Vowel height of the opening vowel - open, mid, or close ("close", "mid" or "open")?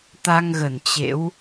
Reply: open